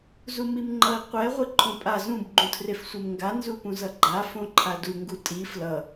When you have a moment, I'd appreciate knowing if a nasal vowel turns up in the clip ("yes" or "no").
yes